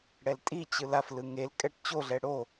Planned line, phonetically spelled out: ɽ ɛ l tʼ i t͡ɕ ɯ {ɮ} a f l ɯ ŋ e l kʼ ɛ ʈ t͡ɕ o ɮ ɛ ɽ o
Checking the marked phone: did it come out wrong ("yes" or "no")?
yes